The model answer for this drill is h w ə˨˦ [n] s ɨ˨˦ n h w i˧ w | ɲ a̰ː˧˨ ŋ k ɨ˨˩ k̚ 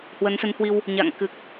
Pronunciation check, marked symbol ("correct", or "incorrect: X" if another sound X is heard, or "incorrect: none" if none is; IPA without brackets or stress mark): correct